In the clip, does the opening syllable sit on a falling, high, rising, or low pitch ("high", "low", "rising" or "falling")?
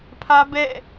high